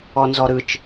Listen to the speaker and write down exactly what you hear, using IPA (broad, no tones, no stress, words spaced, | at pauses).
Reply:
ɔnzɔɾɯt͡ʃ